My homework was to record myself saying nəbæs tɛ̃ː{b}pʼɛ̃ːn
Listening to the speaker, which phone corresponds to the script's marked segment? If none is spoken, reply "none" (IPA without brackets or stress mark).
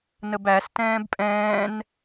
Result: b